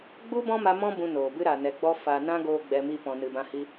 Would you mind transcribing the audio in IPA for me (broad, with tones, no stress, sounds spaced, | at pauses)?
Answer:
ɡ͡b u˦ b ɔ̃˦ m a˧ m ɔ̃˦ b ũ˧ n oː˨ b ɨ˦ ɾ a˨ n ɛ˨ ɡ͡b ɔ˦ f a˨ n ã˧ ɡ oː˦ ɡ͡b ɛ˧ m i˦ p ɔ̃˧ n ɨ˧ b ã˦ h i˧